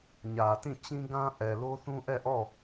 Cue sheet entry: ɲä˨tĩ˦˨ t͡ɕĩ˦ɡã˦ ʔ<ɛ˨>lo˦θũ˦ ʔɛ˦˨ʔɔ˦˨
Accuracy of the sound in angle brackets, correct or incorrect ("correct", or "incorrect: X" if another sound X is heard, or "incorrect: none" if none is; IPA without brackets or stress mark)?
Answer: correct